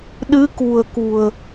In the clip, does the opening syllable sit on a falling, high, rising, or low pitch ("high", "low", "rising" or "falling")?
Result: rising